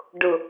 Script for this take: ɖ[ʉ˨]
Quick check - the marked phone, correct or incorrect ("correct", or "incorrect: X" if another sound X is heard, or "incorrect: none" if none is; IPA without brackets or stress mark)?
incorrect: ʊ˨